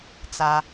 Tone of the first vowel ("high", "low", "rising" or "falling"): low